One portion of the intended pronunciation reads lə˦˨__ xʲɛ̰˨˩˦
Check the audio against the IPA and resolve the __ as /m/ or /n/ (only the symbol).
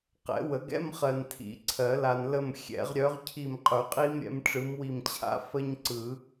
m